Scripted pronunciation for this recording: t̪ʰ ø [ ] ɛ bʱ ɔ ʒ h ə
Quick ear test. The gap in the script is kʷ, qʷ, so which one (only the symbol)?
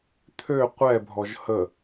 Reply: qʷ